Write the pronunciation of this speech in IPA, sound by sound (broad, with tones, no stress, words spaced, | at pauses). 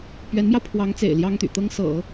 pɥɛ˧˥nmjɑ˧ʊ̯pʰwɑ˧˥ŋt͡sḛ˨˩ɪ̯ ljɑ˥ŋt̪y̰˨˩t̪ɤ˥ŋsɤ̰˨˩˦